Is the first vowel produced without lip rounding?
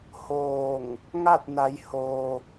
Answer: no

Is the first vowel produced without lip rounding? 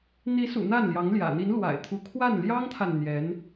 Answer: yes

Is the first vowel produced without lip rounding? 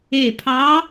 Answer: yes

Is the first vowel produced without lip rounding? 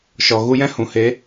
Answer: no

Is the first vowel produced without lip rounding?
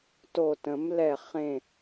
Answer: no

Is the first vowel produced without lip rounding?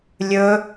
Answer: no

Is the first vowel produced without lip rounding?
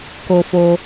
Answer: no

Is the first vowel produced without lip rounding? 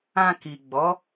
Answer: yes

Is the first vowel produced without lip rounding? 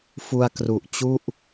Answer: no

